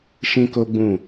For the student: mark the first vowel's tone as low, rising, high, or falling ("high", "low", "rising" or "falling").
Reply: high